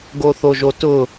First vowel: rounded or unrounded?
rounded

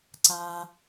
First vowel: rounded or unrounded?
unrounded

